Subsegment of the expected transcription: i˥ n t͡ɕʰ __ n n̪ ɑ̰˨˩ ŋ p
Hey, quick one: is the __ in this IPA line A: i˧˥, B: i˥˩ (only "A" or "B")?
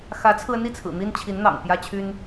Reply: A